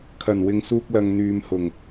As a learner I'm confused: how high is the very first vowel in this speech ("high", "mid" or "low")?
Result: low